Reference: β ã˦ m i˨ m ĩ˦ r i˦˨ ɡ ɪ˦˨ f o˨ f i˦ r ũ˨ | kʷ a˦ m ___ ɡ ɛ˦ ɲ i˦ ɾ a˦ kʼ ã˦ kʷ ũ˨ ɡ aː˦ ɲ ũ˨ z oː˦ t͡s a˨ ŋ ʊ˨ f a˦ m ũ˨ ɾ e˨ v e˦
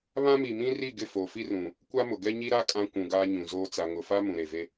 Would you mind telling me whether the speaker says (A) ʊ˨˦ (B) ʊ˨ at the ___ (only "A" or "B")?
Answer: B